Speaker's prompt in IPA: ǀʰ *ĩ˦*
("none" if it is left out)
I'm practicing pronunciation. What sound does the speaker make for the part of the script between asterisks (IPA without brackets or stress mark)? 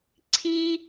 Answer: i˦